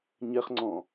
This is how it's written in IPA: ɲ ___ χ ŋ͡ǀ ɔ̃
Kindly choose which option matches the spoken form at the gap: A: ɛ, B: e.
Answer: A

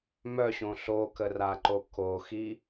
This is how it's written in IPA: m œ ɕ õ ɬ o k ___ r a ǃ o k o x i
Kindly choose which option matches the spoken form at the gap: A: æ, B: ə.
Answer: B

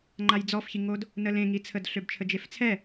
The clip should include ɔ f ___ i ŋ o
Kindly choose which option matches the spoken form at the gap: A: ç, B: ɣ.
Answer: A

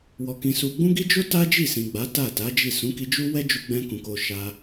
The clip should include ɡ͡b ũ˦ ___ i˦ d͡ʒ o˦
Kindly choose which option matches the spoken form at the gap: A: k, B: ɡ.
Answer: B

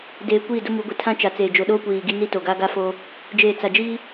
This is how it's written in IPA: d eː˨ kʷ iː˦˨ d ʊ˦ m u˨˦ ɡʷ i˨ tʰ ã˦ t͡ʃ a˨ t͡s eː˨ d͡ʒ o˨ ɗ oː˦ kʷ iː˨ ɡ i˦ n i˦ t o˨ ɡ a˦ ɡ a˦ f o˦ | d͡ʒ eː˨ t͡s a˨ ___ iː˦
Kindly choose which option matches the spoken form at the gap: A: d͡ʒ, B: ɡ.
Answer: A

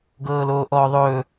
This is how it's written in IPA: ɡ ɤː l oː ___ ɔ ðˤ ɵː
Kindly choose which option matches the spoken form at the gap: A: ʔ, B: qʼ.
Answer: A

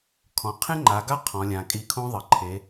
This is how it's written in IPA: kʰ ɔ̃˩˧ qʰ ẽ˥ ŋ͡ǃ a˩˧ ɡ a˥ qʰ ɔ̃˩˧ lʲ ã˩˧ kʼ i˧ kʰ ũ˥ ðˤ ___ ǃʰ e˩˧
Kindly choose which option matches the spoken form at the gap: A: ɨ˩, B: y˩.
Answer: A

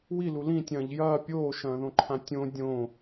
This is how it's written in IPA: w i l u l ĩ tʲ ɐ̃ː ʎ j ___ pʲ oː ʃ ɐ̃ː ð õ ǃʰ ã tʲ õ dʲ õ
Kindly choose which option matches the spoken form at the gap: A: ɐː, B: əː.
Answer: A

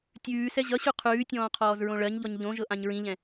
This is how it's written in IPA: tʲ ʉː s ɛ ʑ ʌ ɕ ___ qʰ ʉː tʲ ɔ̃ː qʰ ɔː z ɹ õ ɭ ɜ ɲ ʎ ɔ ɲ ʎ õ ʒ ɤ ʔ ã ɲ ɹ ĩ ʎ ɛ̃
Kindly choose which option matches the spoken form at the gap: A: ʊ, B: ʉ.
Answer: B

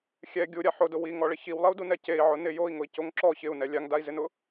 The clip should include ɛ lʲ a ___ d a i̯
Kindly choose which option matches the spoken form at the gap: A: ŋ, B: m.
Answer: A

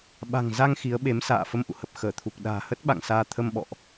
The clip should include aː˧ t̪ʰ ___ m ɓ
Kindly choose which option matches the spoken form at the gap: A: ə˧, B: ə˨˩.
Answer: A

